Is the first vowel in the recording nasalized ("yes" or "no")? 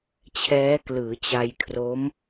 no